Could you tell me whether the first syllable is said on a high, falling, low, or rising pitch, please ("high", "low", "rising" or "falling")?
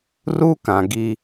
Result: high